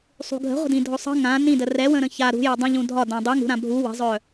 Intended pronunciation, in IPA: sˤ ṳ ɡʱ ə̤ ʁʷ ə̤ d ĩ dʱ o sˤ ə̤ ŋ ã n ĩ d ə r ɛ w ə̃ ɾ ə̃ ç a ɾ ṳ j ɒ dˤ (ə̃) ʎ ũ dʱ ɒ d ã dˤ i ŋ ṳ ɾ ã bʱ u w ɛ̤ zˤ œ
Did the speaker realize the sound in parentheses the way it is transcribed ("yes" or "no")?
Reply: yes